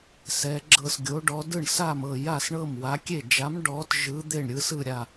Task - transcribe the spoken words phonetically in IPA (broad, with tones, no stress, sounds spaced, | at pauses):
s ɛ˨˥ ɡ͡ǁ ɤ˥˩ s ɡʲ o˨˥ ɖ ɔ˨˥ d ɯ˥˩ ɳ s a˥˩ m ɤ˥˩ j a˥˩ s ɳ ɤ˥˩ m w a˨˥ kʲ e˥˩ d͡ʒ a˨˥ m ɖ ɔ˨˥ t ʒ ɯ˨˥ d̪ e˥˩ ɳ ɾʲ ɯ˨˥ s ɯ˥˩ ɾʲ a˥˩